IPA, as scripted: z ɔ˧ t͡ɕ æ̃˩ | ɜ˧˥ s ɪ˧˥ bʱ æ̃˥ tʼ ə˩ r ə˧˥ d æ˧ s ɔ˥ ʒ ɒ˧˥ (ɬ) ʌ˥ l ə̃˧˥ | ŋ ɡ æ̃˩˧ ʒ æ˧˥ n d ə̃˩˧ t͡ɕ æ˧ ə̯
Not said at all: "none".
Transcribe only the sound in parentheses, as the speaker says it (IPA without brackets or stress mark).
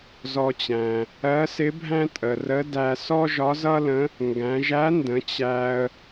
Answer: z